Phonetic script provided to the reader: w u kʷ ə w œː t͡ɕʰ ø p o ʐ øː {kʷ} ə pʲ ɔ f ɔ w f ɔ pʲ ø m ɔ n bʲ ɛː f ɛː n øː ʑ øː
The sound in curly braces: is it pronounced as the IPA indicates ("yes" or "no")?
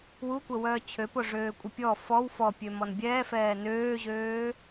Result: no